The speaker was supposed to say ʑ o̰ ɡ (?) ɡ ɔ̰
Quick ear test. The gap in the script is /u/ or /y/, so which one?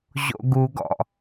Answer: u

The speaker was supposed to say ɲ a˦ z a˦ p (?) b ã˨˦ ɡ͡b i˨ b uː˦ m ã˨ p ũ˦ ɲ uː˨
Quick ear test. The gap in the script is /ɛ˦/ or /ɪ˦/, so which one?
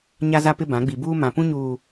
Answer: ɪ˦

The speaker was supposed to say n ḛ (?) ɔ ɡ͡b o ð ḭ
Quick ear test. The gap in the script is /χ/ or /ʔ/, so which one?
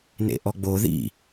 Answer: ʔ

